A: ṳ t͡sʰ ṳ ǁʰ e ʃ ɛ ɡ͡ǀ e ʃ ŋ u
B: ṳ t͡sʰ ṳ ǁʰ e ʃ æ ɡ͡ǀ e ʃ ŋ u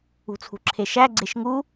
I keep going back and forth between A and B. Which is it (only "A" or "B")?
B